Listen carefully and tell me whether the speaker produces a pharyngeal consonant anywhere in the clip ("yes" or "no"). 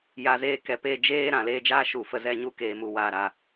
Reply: no